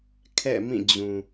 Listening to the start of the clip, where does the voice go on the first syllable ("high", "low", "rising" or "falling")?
falling